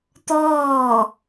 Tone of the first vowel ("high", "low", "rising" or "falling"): falling